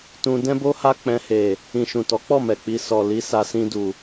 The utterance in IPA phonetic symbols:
tũ˧dɛ̃˦bo˦ha˦ k͡pɛ̃˧he˨ | ĩ˨ʃũ˨tɔ˨˦k͡pɔ˦˨ mɛ˨k͡pi˧ sɔ˨li˨˦ sa˧sĩ˧du˨

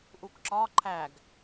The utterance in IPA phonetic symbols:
ʔukǁɒ ǃʰæɡ

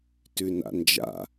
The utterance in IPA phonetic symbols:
tʉna̰nd͡ʒa̰

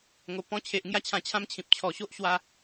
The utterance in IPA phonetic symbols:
ŋo˨˩ pɔ̃˧t͡ɕʰe˨ʔ ŋja˦t͡ɕʰã˧t͡ɕʰã˦mt͡ɕʰĩ˨p̚ t͡ɕʰɔ˨˩ɕo˦ʔ ɕwa˧

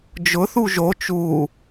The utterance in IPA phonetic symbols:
d͡ʒʊ θuʒo t͡ʃu

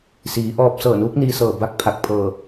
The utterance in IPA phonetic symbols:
siː˩˧ʔɔː˧p̚ sɤː˧˩nuː˧˥k̚niː˧ sɤː˧˩ba˥˨k̚pʰa˧˩k̚pʰɤː˧˩

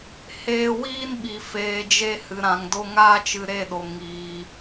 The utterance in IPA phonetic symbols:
heː˧wiː˦nɓi˨ feː˨d͡ʒe˧ hɨ˨ɾã˨ŋdo˦ ŋaː˦t͡ʃɨ˧ɾe˦˨ɗo˨ ŋiː˨

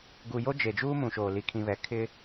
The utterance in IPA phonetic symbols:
ɡu˨jo˦ d͡ʒe˨d͡ʒuː˦mũ˨ʃoː˨ li˨kʰĩ˨βɛ˨ kʰɪ˦

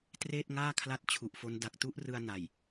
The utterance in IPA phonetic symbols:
treː˥˩t̚ŋaː˥˩kʰla˦˥t̚ t͡ɕʰu˨˩ʔfo˦˥n da˨˩k̚tu˦˥ʔrɯ˧a̯ na˨˩j

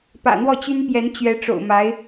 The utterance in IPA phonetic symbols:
pä̰˨˩n̪wɔ˥˩t͡ɕy˥npjɛ˧˥n t͡ɕɥɛ˧˥ʈ͡ʂo̰˨˩ʊ̯ma˧˥ɪ̯

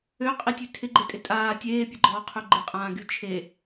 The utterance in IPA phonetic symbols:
øqʼitʲø tʰɪɡ͡ǃetʼɪ tʼaː tʲeːpʲəɡ͡ǃɔːqʰø ɡ͡ǃɪqʼãːɡy t͡ʃʰe

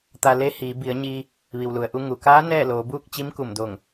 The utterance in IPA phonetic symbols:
t̪a˧le˧˥hiː˩˧ bi˩˧ə̯ɲiː˧ | ʋi˩wlu˩ə̯ʔu˧ ŋu˩kaː˧˥ nɛː˥˨loː˩˧buː˥˨k̚ t͡ɕi˧˥mku˧˩mdo˧˩ŋ

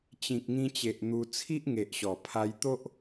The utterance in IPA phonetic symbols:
t͡ɕĩ˨k̚ŋĩ˧t͡ɕe˨ʔ n̪u˧ t͡sʰi˦ʔŋe˨ʔ ɕɔ˨˩pʰa˧jt̪o˦ʔ

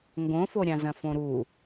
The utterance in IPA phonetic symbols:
ŋɡõfoɾʲã zɐ̃fõɾu

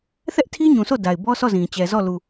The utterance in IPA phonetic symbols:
θɛ˦ʔtʰi˦ ɲũ˨sʰo˦˨ da˨ɪ̯bɔ˦sɔ˦˨zĩ˨ t͡ɕɛ˨zɔ˦˨lu˨

